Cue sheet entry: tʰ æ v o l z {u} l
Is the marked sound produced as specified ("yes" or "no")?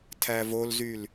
no